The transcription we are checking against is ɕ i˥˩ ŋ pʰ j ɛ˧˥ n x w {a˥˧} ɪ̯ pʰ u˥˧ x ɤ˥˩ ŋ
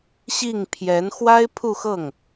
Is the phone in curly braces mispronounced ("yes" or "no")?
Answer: yes